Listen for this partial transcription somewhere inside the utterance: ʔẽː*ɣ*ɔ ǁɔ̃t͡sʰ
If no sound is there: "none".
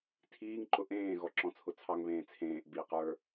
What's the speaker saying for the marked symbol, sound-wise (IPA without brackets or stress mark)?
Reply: ɣ